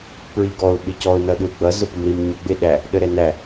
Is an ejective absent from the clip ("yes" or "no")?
yes